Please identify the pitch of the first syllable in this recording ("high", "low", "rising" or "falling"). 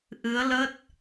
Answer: rising